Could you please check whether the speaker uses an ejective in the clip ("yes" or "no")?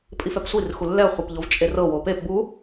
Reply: yes